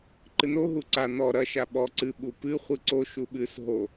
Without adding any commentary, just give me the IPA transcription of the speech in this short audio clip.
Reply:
ǃ ɨ n o ɦ u ǀ a n ɔ ɾ ɐ ʃ a ɓ ɔ ǀ ɨ ɓ u p ɨ χʷ ɨ ǀ o ʃ u ɓ ɨ s ɦ o

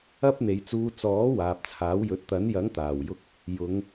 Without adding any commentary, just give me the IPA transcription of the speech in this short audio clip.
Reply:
ɐ˥ p̚ n̪ e˨˧ j t͡s uː˧ t͡s ɔː˨˥ w aː˨ p̚ t͡sʰ aː˨˥ w j ɵ˨˥ t̚ t̪ ɐ˨˥ n j ɐ˨˥ ŋ t̪ aː˨˩ w j ʊ˧ k̚ | j ʊ˨˧ ŋ

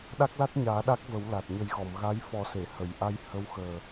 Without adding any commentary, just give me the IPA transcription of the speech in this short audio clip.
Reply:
ɗ a˦˥ k̚ l a˦˥ t̚ ɲ aː˨˩˦ ɗ a˦˥ k̚ v ə˨˩˦ w l a˨˩ t̚ ɲ ə˨˩˦ j ɣ ɔ˨˩˨ m ɣ a˧˥ j f ɔ˨˩˦ s e˨˩˨ h ə˨˩˨ j ʔ a˧ j h ə˧˥ w x əː˨˩

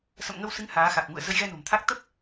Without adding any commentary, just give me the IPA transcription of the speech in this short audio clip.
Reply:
s ə̰˧˨ m ŋ ə˧ w s ɨ˨˦ ŋ h aː˨˦ x a˨˩ k̚ ŋ ṵ˧˨ ə̯ z ə˧ j ɣ ɛ˧ n o̤˨˩ m t̪ʰ a˦˥ k̚ t̪ ə˦˥ p̚

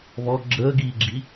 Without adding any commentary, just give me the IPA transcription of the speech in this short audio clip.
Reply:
β ɔ ɡ͡ǁ əː ɡ iː ɡ͡ǁ i

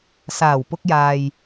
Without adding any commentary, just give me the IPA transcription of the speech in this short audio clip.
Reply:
s aː˨˩ w p ʊ˧ k̚ j aː˨ j

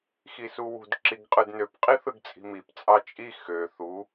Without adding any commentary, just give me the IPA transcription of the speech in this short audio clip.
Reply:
x i s u w ṳ d ǁ i ɡ qʼ ɯ d n ø p qʼ i θ ɯ ɡ t͡sʼ i̤ m i p t͡sʼ ɑ t͡ʃʼ i x ø θ u

